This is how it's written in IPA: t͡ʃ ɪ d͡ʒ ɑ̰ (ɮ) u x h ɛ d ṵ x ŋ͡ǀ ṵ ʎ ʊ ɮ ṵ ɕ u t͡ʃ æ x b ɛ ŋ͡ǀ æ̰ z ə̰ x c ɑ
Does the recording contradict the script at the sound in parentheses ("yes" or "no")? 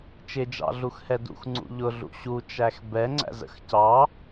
no